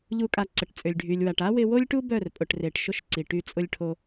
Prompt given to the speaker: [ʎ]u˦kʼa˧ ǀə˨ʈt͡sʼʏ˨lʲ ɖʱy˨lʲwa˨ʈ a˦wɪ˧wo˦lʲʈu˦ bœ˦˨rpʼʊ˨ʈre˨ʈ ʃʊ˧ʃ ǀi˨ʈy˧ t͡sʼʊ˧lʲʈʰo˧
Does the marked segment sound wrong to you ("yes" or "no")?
no